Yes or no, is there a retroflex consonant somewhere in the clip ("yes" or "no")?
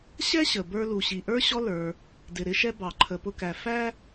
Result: no